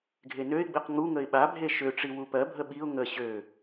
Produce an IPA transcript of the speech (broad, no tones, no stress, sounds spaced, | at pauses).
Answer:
ɡʱ e n ø ɪ̯ ɡ͡b i q ŋ u ŋ ə ɪ̯ ɓ a bʱ e ʃ ø ʈ͡ʂ i w u p ɜ bʱ ə ɓ i ʊ̯ ŋ ə ɕ ø